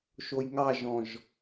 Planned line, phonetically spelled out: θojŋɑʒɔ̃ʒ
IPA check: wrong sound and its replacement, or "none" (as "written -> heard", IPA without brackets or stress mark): θ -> ʃ